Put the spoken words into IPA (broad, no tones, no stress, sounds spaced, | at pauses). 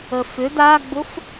ə f ʏ d a ɡ͡b ʊ f